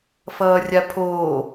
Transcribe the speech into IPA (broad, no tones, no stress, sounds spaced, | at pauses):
f ʌː rʲ a pʰ oː